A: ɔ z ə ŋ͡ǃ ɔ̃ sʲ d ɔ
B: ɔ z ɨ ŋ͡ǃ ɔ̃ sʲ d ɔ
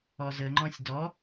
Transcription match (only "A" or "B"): A